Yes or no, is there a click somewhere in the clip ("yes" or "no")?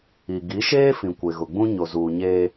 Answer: no